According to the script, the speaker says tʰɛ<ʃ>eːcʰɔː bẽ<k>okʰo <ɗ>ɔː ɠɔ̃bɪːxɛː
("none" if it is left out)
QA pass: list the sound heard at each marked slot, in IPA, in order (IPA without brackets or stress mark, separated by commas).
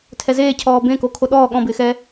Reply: z, k, ɗ